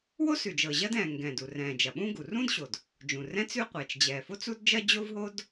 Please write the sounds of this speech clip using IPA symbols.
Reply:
w o˥ s ʉ˩ d͡ʒ ɤ˩ ʑ ɐ˥ d ɛ̃ː˩ ŋ ɡ ɛ̃ː˩ d u˩ r ɛ̃ː˩ d͡ʒ ɐ˩ ɓ ũ˥ ɡ u˩ r ũ˥ d ɕ o˩ d | d͡ʒ ũ˩ r ɛ̃˥ t͡s ʉ˥ qʷ ɛː˩ t͡ʃ d͡ʑ ɛː˩ f o˥ t͡s u˥ d d͡ʒ ɐ˥ d͡ʑ o˥ v ɦ o˥ d

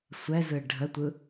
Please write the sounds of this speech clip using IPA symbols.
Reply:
sʷ ɛ z ɯ ɖʱ ə tʷ ɯ

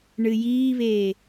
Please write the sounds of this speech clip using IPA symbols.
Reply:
ɳ ɨ j iː β eː

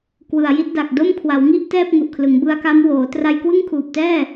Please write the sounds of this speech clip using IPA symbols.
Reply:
k w ɯ˨˩ a̯ j i˥˩ t̚ d a˨˩ k̚ d o˥˩ m kʰ w a˩˦ w ŋ i˥˩ ʔ t ɛː˥˩ p̚ ŋ u˨˩ ʔ kʰ l ɯ˩˦ ŋ b ɯ˧ a̯ k a˦˥ m w oː˩˦ t r a˧ j k w ɯ˥˩ ŋ kʰ uː˨˩ p̚ t ɛː˥˩

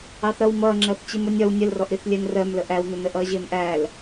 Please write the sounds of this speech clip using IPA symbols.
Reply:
ɑ θ ɾ ʌ w m ʌː ŋ͡ǁ ɜ θ t͡ɕ i m ʊ nʲ ɒ w nʲ ə l r ɔ ʔ ɾ i θ lʲ ɛ n r ɜ m l ə ʔ æ w n ʊ n ə ʔ ʌː ʑ ɪː m ʔ æ l

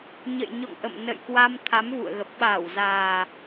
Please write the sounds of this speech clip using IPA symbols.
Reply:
ɲ ə̰˧˨ j ɲ ɔ̰˧˨ ŋ ʔ ə̰˧˨ m n ə̰˧˨ j k w a˧ m t̪ʰ a˨˦ m v ṵ˧˨ ə̯ ɣ ə˨˩ p̚ ɓ a˧˩ w z aː˨˩

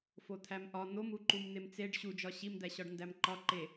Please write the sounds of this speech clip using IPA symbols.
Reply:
f o t̪ʰ æ m ʔ ɒ n̪ o m u ǃ u m n̪ e m t͡s e ɖ ɕ u d͡ʒ ɒ ɕ i m d̪ æ ɕ ɒ ɖ n d æ m ǃ ɒ ǃ e

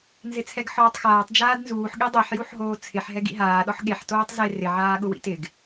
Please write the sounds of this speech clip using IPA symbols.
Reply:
n z ɪ t͡sʰ ɛ ɡ ħ ɔː tˤ x aː tˤ d͡ʒ aː d n z uː ħ ɠ i dˤ e ħ j u ħ ɦ oː t͡sʰ ɪ ħ ɦ ɛ ɡ ḭ ɦ aː ɗ ɔ ħ ɠ e ħ t oː tˤ z e r ɪ ʕ aː ɠ ʊ w ḭ t ɪ ɡ

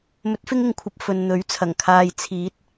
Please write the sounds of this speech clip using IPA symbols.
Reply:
m ɵ˨˥ t̚ f ɪ˥ ŋ ɪ˧ ŋ kʷʰ ɐ˨ p̚ f ɵ˨ n n̪ ɵ˨˥ ɥ t͡sʰ ɐ˨˩ ŋ kʰ aː˧ j t͡sʰ iː˨˥ t̚

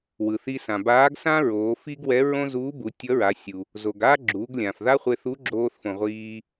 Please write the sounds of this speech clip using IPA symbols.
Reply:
w ɯ˩ θ i˧ s ã˩ b aː˧˥ ɡ s ã˥ ɹ oː˩˧ f i˥ ɡ w ɛ˧˥ ɹ õ˥ z uː˧˥ b u˩˧ tʲ ʌ˧˥ ɹ a˩˧ sʲ u˩ | z o˩ ɡ a˥ ɡ͡ǁ uː˩˧ ɡ lʲ ã˩ f ð a˥ χʷ e˧ θ u˧˥ ɡ͡ǁ oː˧ θ f õ˩ ʁʷ iː˧

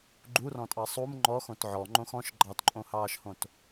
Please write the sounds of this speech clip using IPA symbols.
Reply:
ɡ͡ǃ u r ɔ̃ tʼ ɑ sˤ u m ŋ͡ǃ ɔ x õ t ʕ ɔ ŋ͡ǃ õ x ɔ̃ ʃ ɡ͡ǃ ɑ t ǃʼ õ h ɑː ʃ h õ t

